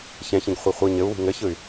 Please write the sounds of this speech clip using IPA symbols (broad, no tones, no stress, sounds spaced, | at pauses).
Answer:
ç ɛ̃ ç ĩ ɡ χʷ ɛ χʷ ɯ ɲ ɘ u̯ w i̤ ŋ ɘ ç ɯ y̯